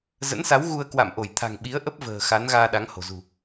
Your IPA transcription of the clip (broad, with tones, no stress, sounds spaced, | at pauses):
z ə̰˧˥ n s a˨˦ w ɣ u˧ ə̯ k w a̰˧˨ m ʔ o˧˩ j t̪ʰ a̤˨˩ ŋ ɓ i˨˦ ə̯ ʔ ə˦˥ p̚ v ə̤ː˨˩ x a˨˦ n ɣ aː˧ ɗ a˨˦ ŋ h o̤˨˩ z ṳ˨˩